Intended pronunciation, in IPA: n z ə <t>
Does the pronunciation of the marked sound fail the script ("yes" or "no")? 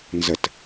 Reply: no